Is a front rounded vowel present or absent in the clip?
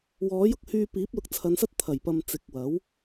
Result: present